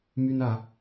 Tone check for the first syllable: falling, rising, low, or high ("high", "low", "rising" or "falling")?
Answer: high